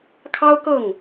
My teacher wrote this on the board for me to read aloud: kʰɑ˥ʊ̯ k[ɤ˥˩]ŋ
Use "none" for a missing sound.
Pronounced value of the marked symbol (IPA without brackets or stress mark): ɤ˥˩